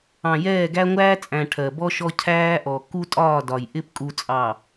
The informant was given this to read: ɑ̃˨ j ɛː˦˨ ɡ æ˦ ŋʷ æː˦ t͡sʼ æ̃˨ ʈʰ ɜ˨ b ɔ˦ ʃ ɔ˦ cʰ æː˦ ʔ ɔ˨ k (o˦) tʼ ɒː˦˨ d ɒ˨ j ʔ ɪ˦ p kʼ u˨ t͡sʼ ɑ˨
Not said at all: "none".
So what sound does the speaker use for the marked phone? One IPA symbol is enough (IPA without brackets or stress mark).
u˦